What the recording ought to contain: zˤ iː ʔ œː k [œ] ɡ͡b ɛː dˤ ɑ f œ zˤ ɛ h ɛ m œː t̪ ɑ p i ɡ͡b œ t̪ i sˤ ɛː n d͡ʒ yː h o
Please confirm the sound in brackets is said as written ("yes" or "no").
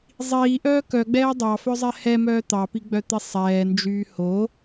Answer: yes